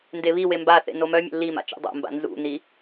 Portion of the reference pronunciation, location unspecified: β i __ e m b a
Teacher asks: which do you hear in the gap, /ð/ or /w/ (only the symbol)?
w